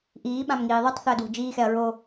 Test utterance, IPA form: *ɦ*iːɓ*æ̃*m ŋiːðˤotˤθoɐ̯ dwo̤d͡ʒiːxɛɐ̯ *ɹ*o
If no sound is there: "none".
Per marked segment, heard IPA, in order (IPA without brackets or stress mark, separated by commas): ʔ, ã, ɹ